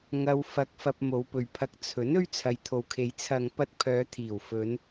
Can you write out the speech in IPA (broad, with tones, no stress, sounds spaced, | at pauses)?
ŋ ɐ˧ w f ɐ˧ k̚ f ɐ˧ p̚ m o˨˧ w p ɵ˨ ɥ pʰ ɐ˧ k̚ t͡sʰ ɵ˨˥ n ɵ˥ ɥ t͡sʰ ɐ˨˧ j t̪ʰ o˨ w kʰ e˨˧ j t͡sʰ ɐ˨ ŋ p ɐ˧ t̚ pʰ œː˨˧ t̪ʰ iː˨˩ w f ɵ˨˧ n